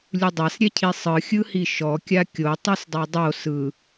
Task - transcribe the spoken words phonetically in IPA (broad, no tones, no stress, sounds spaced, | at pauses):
lʲ u dˤ a s ɾʲ ɛ cʰ i sˤ ɯ xʲ ɯ h i ʃ ɔ kʲ a kʲ o tˤ o s dˤ a dˤ o s ɯ